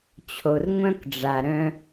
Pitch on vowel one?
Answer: low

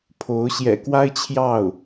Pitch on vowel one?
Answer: rising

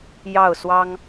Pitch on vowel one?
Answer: falling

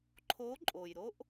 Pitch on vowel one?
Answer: rising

